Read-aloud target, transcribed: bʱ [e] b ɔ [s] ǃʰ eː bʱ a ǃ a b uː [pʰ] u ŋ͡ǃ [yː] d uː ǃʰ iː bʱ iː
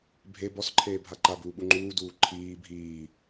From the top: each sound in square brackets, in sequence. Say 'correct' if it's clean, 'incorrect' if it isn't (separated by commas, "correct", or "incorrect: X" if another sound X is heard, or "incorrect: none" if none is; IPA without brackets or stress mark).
correct, correct, incorrect: ɓ, incorrect: uː